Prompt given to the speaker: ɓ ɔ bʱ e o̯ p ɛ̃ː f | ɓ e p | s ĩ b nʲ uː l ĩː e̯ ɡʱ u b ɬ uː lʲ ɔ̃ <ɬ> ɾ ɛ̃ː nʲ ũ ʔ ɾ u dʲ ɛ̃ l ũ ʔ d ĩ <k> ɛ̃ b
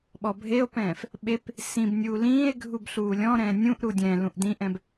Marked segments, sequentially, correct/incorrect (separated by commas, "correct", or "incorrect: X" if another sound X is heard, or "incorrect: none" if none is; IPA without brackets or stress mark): incorrect: none, incorrect: ʔ